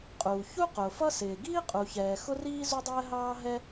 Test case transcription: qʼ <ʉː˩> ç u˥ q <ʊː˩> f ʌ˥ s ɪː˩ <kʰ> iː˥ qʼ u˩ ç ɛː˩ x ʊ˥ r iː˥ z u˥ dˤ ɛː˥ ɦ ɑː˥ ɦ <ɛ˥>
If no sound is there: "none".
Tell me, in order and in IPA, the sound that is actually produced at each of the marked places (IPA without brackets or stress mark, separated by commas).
uː˩, ʊː˩, ɡ, ɛ˥